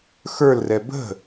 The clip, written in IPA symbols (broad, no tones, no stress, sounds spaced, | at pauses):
x ə˞ l r ɛ b ə̤